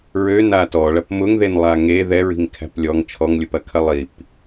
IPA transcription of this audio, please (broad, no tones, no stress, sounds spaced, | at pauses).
ɹ ø n a t ɔ ɭ ɐ p m ʊ ŋ ð e n lˠ a ŋ e ð ɛ ɹ i̤ ŋ kʰ æ̤ p lʲ ɔ ŋ t͡ʃʰ ɔ ŋ lʲ ʊ p ɐ kʰ ɐ lˠ i p